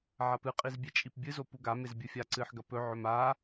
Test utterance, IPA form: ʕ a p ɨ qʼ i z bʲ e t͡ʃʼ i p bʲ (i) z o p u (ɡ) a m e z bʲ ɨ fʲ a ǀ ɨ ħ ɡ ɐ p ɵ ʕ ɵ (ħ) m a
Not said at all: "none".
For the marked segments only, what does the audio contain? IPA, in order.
ɨ, ɡ, none

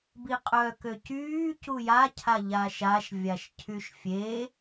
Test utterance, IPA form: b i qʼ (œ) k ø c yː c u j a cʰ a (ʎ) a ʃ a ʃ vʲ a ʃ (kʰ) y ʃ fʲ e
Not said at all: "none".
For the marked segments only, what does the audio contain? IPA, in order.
œ, ʎ, cʰ

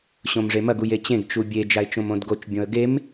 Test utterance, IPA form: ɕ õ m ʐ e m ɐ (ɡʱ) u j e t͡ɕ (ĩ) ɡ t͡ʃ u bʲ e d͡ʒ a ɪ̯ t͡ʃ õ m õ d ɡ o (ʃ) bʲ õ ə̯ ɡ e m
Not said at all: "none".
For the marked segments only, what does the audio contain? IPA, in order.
ɡ, ẽ, t͡ʃ

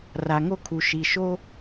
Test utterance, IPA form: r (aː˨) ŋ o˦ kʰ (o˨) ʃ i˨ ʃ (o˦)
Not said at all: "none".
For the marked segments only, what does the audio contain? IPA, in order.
a˨, u˨, o˦

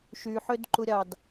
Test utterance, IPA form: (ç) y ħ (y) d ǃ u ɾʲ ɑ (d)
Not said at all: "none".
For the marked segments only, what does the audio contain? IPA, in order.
ʃ, ø, d

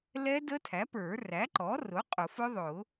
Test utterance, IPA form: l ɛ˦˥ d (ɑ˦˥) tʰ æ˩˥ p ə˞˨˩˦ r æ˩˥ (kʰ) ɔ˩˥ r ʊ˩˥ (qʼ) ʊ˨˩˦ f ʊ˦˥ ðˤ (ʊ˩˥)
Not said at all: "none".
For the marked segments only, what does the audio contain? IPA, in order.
ə˦˥, ǃ, qʼ, ʊ˨˩˦

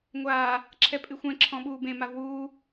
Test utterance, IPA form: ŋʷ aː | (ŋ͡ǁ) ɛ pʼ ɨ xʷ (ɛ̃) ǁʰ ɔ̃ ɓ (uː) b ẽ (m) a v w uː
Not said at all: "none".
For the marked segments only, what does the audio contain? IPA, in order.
ǁʰ, ɛ̃, uː, m

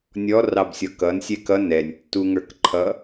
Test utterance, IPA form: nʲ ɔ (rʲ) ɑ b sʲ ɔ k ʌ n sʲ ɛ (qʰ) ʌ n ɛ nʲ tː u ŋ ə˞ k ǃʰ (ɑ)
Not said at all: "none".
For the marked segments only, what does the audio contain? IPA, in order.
r, k, ʌ

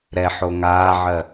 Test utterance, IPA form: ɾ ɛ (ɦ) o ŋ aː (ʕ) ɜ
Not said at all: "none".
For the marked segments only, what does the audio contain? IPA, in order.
ħ, ʕ

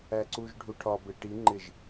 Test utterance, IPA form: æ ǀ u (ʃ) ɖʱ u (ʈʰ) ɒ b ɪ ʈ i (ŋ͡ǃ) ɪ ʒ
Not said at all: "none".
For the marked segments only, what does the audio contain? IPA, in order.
ʒ, ʈʰ, ŋ͡ǃ

